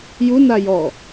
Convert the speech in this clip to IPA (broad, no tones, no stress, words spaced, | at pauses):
ju najɔ